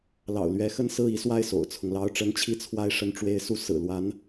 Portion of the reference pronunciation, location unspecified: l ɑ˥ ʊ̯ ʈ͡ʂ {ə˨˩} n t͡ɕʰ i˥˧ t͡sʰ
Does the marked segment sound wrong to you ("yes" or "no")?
yes